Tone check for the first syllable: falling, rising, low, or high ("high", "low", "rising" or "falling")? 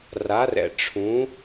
rising